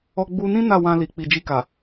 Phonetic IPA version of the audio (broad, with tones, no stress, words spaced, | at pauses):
ɔ˧ɡ͡bu˧nĩ˦ na˦˨wã˧ li˨k͡pi˨d͡ʒi˧ka˨